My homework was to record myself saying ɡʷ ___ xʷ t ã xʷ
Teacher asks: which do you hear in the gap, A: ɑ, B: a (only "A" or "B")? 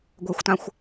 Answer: B